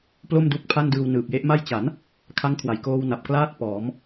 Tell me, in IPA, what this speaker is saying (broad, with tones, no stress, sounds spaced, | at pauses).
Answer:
p l o˥˩ m d u˦˥ k̚ pʰ a˥˩ n d ɯː˧ w n ɯː˨˩ p̚ j e˦˥ ʔ m a˥˩ j t͡ɕ a˩˦ n | kʰ a˦˥ ŋ kʰ w a˨˩ j k oː˧ w n a˨˩ p̚ k l aː˥˩ t̚ p ɔː˩˦ m